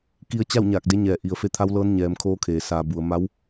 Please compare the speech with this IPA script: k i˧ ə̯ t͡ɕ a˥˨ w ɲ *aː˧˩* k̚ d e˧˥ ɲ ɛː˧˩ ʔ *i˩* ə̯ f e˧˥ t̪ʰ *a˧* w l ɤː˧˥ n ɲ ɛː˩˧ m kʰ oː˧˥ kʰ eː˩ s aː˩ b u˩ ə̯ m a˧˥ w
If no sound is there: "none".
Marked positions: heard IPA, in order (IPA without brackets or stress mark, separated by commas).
aː˧˩, i˩, a˧˥